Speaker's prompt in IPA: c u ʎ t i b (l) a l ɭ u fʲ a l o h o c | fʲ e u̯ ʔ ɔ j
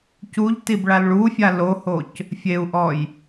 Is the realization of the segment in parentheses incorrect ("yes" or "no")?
yes